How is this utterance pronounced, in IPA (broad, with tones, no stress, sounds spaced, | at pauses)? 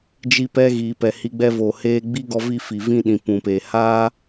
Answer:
d͡ʒ i˧ p ɛ˧ ɣ iː˨ p ɛ˨ h i˧ ɡ͡b ɛ˧ v o˨ h eː˧ ɡ͡b i˦ ɡ ɔ˧ v i˧ f i˨ v ĩ˧ ɗ ĩ˨ p ũ˨ p eː˨ h aː˦